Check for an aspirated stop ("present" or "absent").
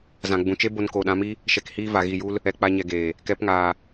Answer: absent